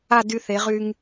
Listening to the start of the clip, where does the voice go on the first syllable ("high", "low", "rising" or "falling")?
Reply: falling